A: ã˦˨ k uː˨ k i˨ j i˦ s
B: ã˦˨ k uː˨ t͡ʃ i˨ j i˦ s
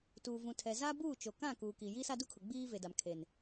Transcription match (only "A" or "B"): A